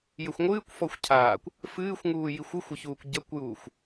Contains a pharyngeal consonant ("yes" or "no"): no